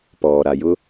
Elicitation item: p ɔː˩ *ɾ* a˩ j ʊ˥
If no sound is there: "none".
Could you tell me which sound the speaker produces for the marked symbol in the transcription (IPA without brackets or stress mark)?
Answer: ɾ